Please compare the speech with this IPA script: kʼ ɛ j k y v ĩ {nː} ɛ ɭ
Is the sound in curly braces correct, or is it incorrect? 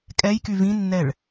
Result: correct